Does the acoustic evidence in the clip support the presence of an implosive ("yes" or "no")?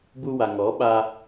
yes